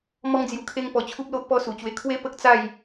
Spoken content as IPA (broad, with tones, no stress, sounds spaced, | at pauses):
m ɔ˧ ŋ d͡z j u˨˩ kʰ e˧ ŋ p ɔ˨˩ t͡ɕʰ u˦ p̚ l o˦ ʔ p ɔ˥˧ s u˨˩ t͡ɕ w e˧ kʰ w e˦ p ə˦ k̚ t͡s a˥˧ j